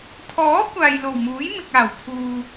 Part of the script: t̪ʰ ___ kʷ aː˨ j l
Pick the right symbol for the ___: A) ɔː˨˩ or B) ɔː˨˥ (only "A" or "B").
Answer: B